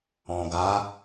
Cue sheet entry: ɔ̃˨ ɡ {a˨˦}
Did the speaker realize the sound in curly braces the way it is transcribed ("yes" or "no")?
yes